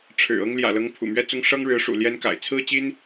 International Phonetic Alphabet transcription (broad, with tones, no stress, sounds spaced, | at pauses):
ʈ͡ʂʰ ɻ̩˨˩ ɤ˥ ŋ l j ä̰˨˩ l ɤ˧˥ ŋ pʰ ṵ˨˩ m ɥ ɛ˥ t͡s ʊ˥ ŋ ʂ ɤ˥ ŋ ɻ ɻ̩˧˥ ʂ ṵ˨˩ l j ɛ˥ n k a̰˨˩ ɪ̯ t͡sʰ ɹ̩˥ t͡ɕ i˥ n